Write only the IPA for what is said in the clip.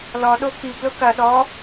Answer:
l ɔ ɗ o k i ɡ l ʊ k ɐ ɗ ɔ

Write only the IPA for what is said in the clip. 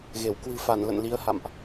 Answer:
ɣ e˧˩ w k w ɨ̤˨˩ f a˧˩ n l ə̰˧˨ n l i˨˦ ə̯ h a̰˧˨ m ʔ

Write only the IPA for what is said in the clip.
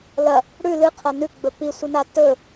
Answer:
l ɐ | ɽ ʉ l ɨ qʰ ɐ n ʉ ɡ͡b ɵ p i sʷ ɨ n a t ɵ

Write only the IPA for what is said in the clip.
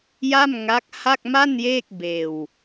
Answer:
j a˥˩ m ŋ a˦˥ k̚ h a˥˩ k̚ m a˥˩ n j eː˥˩ k̚ b eː˧ w

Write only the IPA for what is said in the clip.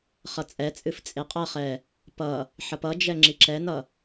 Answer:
χ ʌ t͡sʼ ɛ t͡sʼ ɨ f t͡sʼ e qʼ ʌ χ ɛ | p ʌ | ħ ʌ p ʌ d͡ʒ ɛ ŋ͡ǁ i ǁ ɛ n ʌ

